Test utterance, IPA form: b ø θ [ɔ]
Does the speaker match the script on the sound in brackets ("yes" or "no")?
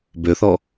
yes